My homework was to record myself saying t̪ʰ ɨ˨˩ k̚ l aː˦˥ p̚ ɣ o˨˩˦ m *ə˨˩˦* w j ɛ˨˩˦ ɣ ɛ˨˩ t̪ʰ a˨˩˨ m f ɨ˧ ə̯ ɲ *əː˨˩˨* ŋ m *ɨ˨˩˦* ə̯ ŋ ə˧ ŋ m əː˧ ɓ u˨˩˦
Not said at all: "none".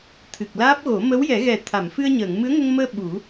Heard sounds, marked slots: ə˧˥, əː˨˩˨, ɨ˧˥

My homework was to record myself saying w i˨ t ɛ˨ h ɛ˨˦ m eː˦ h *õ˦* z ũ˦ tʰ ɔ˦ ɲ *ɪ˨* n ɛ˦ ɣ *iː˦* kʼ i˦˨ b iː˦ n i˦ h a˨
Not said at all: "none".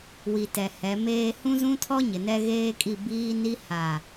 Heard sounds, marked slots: ũ˦, ɪ˨, eː˦

